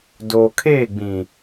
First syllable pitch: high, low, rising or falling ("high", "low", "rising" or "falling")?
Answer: low